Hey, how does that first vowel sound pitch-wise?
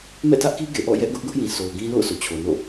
falling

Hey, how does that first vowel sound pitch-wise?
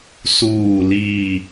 falling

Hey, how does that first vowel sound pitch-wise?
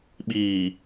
low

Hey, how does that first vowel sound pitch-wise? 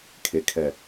low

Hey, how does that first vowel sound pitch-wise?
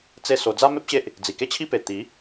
falling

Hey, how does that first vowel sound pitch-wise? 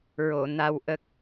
low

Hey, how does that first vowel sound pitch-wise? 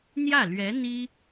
falling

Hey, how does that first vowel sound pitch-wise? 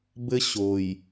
high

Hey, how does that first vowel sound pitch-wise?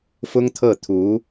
high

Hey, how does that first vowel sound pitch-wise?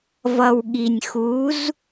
low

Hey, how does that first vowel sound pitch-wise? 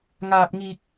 high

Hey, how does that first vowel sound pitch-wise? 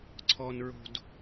low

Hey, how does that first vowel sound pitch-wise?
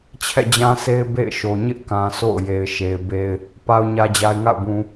falling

